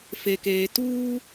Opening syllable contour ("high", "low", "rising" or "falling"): low